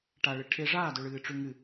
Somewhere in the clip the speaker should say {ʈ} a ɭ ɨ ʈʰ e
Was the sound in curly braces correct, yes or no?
yes